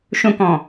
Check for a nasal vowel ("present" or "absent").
present